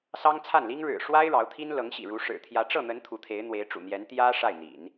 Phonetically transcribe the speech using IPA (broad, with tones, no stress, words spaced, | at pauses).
sɑ˥ŋt͡sʰa˥˩nli˥ŋ ɻɻ̩˨˩ʂwa˥ɪ̯ ɻɑ˧˥ʊ̯t̪ʰi˥nlɤ˧˥ŋɕḭ˨˩ ɻu˧˥ʂɻ̩˨˩ t̪ʰjä˧˥ʈ͡ʂɤ˥˩n̪ə˧˥n t̪ʰu˧˥t̪ʰe˧˥ɪ̯ n̪we˧˥ɪ̯ ʈ͡ʂṵ˨˩n̪jɛ˧˥n t̪jä˥ ʂa˥˩ɪ̯n̪ḭ˨˩˦n